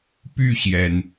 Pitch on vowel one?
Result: falling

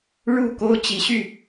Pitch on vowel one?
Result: falling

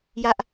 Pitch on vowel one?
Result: high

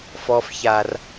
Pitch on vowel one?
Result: low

